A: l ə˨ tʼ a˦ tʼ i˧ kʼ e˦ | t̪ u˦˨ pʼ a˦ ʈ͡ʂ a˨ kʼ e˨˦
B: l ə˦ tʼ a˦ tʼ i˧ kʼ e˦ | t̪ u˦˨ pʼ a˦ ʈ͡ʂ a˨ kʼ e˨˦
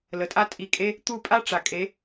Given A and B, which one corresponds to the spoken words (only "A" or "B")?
A